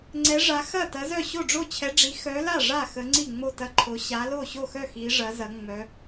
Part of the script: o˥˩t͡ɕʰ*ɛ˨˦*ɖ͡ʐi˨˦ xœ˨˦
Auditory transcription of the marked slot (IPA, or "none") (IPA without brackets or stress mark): ɛ˨˦